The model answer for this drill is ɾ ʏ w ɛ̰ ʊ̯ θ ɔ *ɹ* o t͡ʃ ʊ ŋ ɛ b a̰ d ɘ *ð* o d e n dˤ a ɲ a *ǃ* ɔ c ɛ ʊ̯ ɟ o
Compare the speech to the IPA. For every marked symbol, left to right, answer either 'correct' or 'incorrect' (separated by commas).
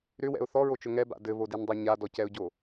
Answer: correct, incorrect, incorrect